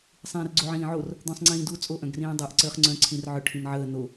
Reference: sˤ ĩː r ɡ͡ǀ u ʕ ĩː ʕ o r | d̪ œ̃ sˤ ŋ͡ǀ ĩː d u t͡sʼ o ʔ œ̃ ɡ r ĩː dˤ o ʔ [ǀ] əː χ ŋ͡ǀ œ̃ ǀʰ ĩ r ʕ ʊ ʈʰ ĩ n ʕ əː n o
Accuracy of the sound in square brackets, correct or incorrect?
correct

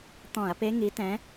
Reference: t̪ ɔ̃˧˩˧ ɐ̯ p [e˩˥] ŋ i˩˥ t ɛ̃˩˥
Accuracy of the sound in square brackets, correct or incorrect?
incorrect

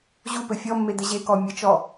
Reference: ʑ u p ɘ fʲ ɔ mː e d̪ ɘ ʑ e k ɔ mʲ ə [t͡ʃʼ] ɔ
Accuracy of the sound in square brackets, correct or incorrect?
incorrect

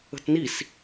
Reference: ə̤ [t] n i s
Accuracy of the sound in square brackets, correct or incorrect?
correct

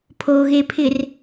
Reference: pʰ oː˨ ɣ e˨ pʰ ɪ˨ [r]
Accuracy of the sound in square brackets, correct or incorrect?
correct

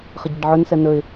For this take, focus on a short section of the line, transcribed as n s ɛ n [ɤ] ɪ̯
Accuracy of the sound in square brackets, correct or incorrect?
incorrect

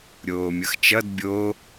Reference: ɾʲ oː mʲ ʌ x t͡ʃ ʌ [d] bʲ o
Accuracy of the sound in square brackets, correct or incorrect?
correct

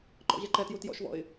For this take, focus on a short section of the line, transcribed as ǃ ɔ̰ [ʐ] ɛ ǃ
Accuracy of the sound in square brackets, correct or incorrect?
incorrect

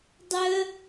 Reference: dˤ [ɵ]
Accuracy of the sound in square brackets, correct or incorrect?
incorrect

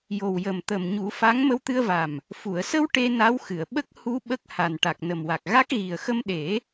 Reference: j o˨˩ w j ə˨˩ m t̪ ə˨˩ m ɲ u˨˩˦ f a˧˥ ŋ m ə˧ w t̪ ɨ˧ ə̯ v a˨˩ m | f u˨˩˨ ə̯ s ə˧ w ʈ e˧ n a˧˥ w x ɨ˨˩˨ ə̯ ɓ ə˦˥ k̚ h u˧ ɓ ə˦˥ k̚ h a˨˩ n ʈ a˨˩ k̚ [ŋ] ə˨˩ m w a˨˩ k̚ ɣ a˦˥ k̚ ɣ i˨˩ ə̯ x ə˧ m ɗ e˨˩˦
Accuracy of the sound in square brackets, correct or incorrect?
incorrect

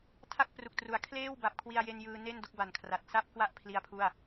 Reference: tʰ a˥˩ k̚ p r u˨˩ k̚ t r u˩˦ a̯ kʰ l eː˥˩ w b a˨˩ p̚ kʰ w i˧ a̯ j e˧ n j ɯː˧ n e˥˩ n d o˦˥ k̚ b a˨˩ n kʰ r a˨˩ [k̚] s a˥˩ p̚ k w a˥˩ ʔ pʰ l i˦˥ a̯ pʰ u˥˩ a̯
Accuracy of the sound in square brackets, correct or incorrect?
incorrect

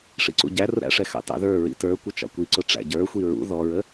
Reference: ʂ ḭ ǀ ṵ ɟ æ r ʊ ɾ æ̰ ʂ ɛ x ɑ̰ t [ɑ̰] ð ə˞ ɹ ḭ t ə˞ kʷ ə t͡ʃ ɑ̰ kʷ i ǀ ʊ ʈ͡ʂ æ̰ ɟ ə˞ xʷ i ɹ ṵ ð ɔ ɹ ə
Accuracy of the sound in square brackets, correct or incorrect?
correct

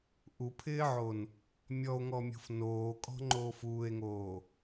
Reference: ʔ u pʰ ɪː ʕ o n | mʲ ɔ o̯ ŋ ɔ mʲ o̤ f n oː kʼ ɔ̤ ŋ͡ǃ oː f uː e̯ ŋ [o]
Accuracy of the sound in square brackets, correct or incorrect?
incorrect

